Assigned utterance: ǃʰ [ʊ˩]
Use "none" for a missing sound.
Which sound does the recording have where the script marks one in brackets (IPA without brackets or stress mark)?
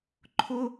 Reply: ʊ˥